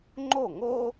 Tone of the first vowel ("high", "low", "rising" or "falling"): falling